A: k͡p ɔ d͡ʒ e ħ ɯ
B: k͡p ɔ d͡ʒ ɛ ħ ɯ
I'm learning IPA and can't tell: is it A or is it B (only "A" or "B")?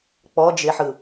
A